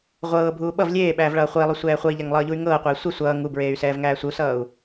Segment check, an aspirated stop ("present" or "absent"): absent